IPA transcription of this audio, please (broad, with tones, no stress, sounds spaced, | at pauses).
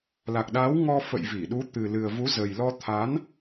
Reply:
l a˨˩ k̚ ɗ a˨˦ w ŋ ɔ˧ f ə̰˧˨ j v i˧˩ ɗ u˨˦ t̪ ɨ˨˩ l ɨ˨˩ ə̯ v u˨˦ z ə˨˩ j l ɔ˧ t̪ʰ a˨˦ n